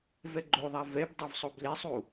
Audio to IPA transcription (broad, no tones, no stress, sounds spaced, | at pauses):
v ɛ ɡ͡ǃ o ðˤ a v ɛ b dˤ ɛ v sˤ o b l e sˤ u